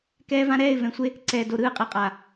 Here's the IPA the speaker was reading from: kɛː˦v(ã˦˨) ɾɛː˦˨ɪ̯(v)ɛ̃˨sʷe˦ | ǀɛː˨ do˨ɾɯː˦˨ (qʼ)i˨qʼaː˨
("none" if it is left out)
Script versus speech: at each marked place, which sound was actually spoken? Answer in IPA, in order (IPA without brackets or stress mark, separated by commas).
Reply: ã˦, v, qʼ